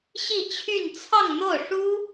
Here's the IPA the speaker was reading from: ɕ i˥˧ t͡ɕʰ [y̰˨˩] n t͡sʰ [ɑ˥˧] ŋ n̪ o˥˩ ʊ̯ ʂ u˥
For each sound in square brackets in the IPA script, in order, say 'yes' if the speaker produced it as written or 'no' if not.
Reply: no, yes

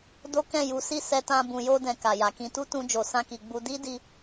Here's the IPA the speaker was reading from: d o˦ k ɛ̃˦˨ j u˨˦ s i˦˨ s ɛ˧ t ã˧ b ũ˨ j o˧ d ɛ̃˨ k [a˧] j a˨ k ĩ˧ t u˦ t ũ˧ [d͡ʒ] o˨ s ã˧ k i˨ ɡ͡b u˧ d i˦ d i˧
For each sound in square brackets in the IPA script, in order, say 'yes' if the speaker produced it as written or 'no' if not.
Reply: no, yes

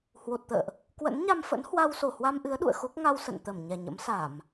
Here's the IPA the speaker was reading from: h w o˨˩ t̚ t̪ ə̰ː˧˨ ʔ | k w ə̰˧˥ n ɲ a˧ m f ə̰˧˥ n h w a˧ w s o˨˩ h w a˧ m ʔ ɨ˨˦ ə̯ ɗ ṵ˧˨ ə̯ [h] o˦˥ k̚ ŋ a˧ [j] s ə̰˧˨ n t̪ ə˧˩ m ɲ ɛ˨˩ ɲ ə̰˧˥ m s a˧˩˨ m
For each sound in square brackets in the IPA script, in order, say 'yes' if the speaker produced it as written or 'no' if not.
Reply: no, no

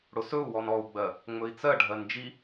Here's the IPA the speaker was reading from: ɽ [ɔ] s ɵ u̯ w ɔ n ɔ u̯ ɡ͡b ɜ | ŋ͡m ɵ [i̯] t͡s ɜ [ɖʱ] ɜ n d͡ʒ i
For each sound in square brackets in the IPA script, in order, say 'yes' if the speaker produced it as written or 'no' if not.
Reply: no, yes, yes

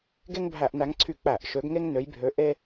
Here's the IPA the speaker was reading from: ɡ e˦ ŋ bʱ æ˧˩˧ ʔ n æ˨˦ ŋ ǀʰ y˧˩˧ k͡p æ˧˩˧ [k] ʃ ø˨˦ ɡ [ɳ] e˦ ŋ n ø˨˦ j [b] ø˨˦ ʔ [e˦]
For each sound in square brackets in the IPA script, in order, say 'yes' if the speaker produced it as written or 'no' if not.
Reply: no, no, no, yes

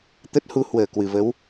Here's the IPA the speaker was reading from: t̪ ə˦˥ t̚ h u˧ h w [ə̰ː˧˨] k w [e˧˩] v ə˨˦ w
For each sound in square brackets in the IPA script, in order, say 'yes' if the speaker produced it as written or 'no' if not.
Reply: no, no

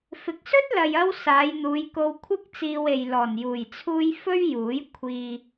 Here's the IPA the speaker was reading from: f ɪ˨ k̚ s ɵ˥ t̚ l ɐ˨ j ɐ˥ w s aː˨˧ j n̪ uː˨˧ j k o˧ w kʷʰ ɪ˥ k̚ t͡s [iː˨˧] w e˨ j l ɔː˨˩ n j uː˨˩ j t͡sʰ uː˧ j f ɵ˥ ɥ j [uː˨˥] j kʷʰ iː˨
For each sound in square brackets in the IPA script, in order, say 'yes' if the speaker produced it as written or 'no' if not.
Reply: no, yes

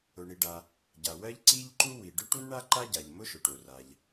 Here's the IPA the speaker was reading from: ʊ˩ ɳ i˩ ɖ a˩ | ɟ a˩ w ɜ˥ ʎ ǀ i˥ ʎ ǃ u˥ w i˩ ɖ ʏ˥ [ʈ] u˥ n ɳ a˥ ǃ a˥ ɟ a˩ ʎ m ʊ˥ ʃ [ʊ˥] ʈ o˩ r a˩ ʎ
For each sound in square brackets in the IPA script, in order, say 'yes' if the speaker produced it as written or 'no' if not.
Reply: yes, no

